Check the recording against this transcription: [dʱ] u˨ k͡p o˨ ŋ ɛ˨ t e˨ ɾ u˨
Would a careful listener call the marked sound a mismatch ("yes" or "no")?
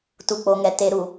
yes